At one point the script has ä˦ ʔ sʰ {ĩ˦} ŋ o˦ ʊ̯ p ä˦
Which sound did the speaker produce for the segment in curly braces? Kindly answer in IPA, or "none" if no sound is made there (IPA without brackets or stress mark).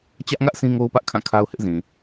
ĩ˦